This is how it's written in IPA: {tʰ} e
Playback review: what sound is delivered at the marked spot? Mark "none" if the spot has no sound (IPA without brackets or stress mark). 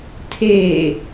tʰ